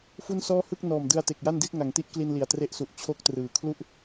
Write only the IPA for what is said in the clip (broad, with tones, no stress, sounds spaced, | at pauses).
f u˥˩ n s ɔː˥˩ h ɯ˥˩ k̚ n ɔː˨˩ m d ɯ˧ a̯ t e˨˩ k̚ j a˥˩ n d i˥˩ t̚ ŋ a˩˦ ŋ t i˦˥ ʔ k l i˧ n l i˨˩ a̯ t r e˦˥ ʔ s u˨˩ ʔ t͡ɕʰ o˦˥ k̚ t r ɯː˨˩ kʰ l u˥˩ ʔ